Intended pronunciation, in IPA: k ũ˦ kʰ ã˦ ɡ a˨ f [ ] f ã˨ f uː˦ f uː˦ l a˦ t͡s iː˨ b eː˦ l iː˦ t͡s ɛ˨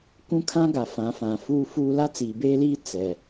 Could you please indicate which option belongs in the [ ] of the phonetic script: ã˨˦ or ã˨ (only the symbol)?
ã˨˦